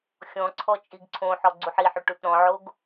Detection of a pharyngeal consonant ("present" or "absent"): present